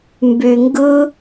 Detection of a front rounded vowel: present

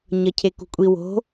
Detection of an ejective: present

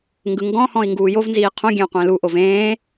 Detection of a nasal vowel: present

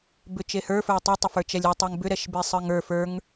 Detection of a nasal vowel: absent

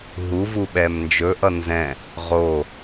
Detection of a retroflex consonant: absent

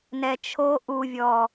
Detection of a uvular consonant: absent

